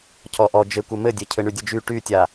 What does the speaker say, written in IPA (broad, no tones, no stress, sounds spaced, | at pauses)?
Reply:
cʰ ɔ ʔ ɔ d͡ʒ ɘ kʷ ɘ m ɘ dʲ e cʰ ɘ ɳ y dʲ ɘ d͡ʒ y ʈ y tʲ a